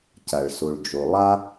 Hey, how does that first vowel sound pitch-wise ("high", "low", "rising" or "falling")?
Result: low